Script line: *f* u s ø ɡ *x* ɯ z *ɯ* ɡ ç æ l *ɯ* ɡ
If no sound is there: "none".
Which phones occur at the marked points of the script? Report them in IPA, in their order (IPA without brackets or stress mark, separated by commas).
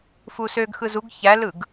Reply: f, x, u, ɯ